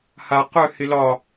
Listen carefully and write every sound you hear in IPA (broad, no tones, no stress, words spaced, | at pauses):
ha qœ hɪlɒ